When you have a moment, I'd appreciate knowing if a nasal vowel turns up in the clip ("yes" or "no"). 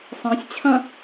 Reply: yes